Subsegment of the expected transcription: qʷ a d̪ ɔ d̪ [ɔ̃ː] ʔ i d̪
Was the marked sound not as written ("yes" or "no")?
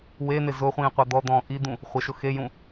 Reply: no